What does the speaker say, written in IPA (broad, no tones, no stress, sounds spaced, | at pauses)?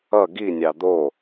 ʌ ɡ i nʲ ɑ d̪ o